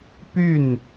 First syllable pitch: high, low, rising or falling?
falling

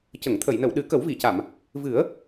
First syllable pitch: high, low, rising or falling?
low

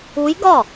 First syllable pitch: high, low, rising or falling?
rising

